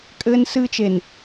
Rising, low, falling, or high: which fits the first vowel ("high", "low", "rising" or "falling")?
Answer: high